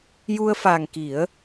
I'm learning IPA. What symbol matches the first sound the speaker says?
j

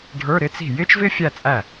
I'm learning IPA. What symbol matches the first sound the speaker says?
ɖʱ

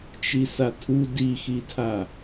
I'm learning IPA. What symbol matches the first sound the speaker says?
t͡ʃ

